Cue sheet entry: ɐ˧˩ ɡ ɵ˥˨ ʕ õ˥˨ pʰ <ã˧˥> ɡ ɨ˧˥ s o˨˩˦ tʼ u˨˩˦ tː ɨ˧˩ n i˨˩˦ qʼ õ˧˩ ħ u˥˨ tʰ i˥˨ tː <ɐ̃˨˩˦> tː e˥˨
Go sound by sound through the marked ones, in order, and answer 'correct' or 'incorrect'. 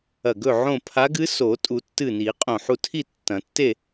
incorrect, correct

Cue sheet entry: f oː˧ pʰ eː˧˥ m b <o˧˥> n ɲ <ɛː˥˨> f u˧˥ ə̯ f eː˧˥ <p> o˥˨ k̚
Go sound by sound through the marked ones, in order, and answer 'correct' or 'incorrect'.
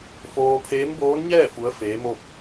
incorrect, correct, incorrect

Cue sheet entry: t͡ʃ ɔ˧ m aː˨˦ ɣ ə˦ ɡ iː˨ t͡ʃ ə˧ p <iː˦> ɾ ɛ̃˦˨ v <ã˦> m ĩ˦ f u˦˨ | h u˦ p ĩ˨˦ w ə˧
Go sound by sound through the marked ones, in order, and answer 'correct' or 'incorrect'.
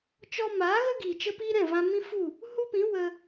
correct, incorrect

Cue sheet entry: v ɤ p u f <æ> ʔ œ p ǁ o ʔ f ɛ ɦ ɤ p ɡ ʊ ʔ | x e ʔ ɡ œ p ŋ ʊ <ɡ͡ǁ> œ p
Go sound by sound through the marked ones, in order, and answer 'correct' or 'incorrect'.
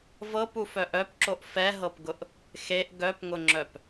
incorrect, incorrect

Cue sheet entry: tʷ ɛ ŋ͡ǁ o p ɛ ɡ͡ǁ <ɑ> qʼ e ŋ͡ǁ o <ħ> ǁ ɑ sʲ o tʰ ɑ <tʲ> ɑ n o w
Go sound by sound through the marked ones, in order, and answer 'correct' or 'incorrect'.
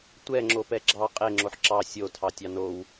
correct, correct, correct

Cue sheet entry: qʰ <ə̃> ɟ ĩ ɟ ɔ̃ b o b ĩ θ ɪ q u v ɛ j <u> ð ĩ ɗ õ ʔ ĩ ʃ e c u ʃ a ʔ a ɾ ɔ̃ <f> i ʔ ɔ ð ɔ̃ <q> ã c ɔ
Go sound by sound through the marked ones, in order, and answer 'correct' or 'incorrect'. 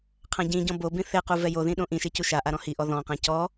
incorrect, incorrect, incorrect, correct

